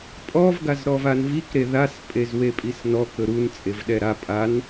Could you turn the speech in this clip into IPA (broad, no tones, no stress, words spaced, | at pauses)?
pʼɔvɡaz ɾɔvanvikɾe ðaspʼez wepʼisnɔ kɵɾun t͡sʼevɗɛɾa pʼan